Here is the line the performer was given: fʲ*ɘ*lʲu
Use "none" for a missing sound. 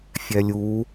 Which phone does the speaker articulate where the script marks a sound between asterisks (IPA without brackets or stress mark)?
ɛ